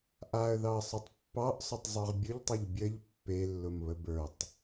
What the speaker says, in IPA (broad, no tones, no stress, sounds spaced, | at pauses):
ʔ a ə̯ ð ɑ ə̯ sˤ ʊ tˤ pː ɑ ʔ sˤ ʊ tˤ zˤ ə˞ ʁ bʲ ʊ ʎ tˤ e ʎ bʲ ə ʎ pː e lː ʊ m β ə b ə˞ tˤ